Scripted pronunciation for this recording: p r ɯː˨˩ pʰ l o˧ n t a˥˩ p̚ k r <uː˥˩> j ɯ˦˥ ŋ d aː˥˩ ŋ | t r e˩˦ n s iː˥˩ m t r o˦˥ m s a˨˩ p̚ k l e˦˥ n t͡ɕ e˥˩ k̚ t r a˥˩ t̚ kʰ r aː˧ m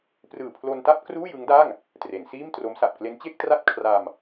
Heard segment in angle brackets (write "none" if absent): uː˥˩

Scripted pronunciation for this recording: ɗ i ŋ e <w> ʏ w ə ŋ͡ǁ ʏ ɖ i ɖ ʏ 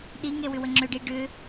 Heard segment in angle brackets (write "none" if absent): w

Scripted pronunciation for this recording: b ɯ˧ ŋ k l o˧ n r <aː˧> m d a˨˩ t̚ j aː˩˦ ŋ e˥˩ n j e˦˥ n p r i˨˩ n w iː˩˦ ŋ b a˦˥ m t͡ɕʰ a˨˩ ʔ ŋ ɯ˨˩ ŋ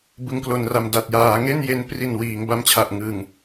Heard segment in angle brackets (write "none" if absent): a˧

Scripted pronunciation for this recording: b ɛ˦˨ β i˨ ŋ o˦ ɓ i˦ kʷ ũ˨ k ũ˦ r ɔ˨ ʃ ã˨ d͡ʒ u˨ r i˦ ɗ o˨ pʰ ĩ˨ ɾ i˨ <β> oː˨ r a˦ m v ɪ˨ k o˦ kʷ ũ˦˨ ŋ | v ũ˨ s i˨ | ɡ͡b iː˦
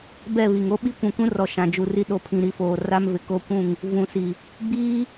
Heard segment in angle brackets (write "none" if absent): f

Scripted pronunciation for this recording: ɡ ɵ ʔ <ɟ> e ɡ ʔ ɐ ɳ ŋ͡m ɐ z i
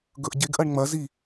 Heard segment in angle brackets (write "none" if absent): ɟ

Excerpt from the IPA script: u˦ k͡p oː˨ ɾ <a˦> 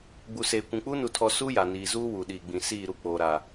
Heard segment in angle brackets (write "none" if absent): a˨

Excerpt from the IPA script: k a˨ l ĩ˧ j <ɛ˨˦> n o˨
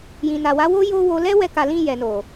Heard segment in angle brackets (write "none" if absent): ɛ˨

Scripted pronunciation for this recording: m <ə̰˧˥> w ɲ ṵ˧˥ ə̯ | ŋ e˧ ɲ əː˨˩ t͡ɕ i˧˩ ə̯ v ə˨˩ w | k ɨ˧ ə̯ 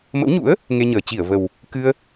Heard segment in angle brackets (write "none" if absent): ə̰˧˥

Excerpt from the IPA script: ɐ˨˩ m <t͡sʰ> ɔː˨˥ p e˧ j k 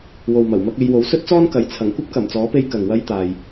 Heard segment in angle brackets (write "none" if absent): t͡s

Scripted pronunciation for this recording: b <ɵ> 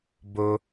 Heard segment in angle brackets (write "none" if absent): ɵ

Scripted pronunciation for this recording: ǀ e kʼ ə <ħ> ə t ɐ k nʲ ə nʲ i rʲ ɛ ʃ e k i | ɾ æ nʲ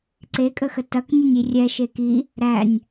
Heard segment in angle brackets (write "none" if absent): x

